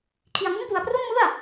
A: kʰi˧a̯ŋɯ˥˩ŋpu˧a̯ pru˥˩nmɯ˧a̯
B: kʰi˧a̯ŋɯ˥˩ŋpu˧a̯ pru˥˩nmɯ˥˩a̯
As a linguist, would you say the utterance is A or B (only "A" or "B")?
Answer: B